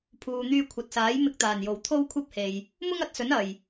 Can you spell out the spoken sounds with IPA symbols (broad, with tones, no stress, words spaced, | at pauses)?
pʰuː˨n̪yː˧kʷʰɐ˨t̚saː˨˥j mɪ˧k̚t̪aː˨˩njo˨˩w t̪ʰo˥wkʷʰɐ˥p̚he˨j | mʊ˥ŋɐ˨˥t̚sɵ˨˥n ɐ˨j